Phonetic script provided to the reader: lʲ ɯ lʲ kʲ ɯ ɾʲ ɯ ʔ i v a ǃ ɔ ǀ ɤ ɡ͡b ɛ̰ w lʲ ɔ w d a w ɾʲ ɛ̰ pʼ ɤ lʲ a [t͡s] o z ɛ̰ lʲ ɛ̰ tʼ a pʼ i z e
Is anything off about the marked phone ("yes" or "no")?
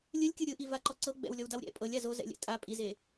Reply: yes